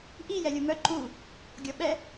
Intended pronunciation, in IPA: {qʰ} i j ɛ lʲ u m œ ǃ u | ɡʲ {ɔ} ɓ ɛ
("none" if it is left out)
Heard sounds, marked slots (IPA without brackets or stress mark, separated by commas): ʔ, ɔ